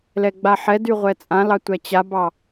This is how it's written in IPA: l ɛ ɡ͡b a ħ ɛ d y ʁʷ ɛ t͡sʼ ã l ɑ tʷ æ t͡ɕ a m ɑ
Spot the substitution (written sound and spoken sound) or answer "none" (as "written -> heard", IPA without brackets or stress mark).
m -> b